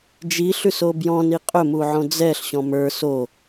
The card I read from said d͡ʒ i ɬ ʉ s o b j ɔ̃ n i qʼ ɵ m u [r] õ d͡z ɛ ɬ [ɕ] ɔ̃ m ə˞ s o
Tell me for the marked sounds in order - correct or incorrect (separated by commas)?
incorrect, correct